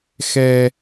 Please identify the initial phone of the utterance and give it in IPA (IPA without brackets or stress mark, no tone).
x